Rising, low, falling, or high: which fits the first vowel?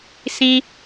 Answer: high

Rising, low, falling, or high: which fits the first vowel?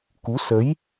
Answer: rising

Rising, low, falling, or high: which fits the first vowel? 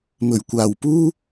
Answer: low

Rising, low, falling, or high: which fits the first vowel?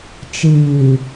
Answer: low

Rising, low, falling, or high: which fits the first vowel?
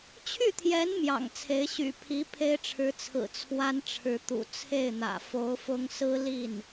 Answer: falling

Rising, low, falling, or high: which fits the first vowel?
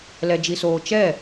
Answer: high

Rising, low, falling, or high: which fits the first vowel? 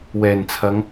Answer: low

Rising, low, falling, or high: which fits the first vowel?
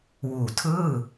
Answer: low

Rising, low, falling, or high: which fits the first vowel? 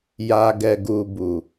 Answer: low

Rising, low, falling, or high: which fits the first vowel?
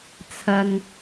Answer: low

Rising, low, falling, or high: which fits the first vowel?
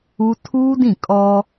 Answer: high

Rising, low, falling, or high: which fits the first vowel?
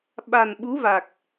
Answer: low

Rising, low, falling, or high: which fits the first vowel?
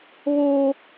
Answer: high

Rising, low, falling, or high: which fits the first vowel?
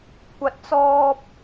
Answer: low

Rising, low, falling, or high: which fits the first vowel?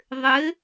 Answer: rising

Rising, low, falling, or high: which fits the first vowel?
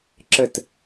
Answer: falling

